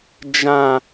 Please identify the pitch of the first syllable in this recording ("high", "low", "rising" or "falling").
low